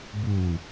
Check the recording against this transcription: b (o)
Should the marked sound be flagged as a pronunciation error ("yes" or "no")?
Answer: yes